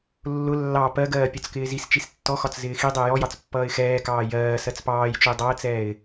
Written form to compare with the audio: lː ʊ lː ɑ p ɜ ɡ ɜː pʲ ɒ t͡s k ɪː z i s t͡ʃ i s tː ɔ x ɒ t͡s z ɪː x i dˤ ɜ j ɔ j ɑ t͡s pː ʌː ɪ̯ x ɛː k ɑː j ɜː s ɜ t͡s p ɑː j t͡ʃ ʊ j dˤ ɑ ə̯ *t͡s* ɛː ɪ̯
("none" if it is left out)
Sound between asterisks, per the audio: t͡s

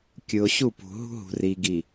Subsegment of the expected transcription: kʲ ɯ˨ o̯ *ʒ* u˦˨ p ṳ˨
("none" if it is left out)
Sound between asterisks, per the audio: ɕ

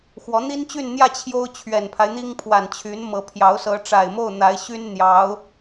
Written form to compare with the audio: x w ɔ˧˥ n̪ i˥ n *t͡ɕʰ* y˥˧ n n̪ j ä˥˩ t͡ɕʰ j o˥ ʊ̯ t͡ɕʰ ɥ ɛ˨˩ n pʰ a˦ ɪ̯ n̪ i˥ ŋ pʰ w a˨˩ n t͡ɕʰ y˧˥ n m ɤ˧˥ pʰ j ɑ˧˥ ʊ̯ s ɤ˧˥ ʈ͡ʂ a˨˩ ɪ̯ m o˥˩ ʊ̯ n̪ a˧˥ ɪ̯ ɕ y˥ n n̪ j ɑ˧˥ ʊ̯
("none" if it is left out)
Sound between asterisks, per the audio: t͡ɕ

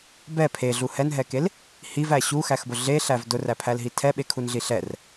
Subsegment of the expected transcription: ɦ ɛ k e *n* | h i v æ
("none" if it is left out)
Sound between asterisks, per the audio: l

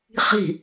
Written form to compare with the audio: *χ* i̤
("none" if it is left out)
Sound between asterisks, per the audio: χ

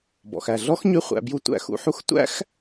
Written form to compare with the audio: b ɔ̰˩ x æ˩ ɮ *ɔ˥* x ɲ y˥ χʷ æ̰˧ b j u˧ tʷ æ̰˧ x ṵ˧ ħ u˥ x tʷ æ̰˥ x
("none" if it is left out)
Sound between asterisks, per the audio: ɔ˥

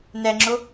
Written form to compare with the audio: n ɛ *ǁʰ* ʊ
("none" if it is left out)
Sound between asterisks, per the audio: ŋ͡ǁ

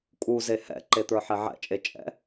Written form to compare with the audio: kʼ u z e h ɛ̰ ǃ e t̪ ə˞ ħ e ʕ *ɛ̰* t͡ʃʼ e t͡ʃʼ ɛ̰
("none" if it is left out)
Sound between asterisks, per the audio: ɛ̰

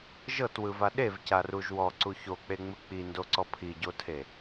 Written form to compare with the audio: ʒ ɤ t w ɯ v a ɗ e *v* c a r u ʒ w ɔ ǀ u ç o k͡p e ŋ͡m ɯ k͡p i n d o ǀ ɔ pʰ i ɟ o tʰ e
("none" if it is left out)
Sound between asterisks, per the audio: v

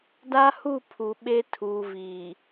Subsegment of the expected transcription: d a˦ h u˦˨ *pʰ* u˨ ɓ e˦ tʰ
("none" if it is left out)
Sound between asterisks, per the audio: pʰ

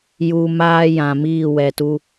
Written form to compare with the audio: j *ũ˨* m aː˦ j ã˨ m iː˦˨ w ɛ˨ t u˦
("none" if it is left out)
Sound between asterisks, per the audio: u˨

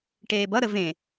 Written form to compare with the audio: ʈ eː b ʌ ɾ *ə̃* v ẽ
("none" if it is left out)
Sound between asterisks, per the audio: ə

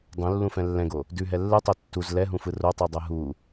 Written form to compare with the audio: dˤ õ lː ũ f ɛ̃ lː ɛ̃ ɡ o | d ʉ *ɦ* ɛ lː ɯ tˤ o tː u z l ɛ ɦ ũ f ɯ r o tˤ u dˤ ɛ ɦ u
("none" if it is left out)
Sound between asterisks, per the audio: ɦ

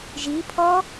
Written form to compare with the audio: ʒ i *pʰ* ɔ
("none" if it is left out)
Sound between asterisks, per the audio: pʰ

